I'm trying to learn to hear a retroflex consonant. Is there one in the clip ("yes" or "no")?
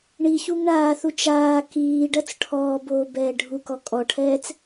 yes